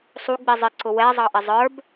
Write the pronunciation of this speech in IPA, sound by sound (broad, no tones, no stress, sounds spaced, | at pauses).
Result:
sˤ u ɡ͡b i zˤ ɪ ǀ ʊ w ɛ zˤ ɑ ʔ ɪ zˤ ə˞ b